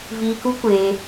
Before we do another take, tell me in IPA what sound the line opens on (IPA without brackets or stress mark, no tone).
v